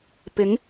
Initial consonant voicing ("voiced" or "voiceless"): voiceless